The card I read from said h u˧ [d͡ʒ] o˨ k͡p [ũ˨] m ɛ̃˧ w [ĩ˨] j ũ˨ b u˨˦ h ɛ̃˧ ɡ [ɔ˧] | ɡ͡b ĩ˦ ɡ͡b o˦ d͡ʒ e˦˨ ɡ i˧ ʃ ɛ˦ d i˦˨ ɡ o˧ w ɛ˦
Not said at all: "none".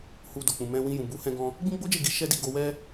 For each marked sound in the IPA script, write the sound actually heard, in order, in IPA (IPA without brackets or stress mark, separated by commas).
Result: d, ũ˨, ĩ˧, ɔ̃˧